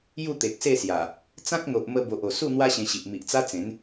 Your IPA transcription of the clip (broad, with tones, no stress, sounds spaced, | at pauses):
j u˥˧ t̪ e˨ k̚ s e˥˧ s j a˨˩ | t͡s ã˦ k̚ n̪ o˨ ʔ m ə˧ b o˨ ʔ o˨˩ s u˥˧ n̪ w a˦ ɕ ẽ˧ ɕ i˨ ʔ m i˨ ʔ t͡s a˦ t͡s ẽ˨˦ n